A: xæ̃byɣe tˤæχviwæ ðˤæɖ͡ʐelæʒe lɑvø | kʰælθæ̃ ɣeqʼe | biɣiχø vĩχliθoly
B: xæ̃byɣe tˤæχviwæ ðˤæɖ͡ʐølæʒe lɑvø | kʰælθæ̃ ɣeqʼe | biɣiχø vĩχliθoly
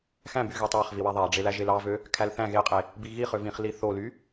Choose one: A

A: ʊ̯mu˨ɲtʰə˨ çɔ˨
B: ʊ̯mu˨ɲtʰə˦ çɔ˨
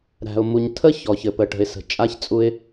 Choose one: B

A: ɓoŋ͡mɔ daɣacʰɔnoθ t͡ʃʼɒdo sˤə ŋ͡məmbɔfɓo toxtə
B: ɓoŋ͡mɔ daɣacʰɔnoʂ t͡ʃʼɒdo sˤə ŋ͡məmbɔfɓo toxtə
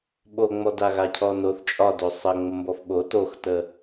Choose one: A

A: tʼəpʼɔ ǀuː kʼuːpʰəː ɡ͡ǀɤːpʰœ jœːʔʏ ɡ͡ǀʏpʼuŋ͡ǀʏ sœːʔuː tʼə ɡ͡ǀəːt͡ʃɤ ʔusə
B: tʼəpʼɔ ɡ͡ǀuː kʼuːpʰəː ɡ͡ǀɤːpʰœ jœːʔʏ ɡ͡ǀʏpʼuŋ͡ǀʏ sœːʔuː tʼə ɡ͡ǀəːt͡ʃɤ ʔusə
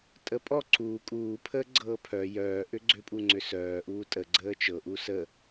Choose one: A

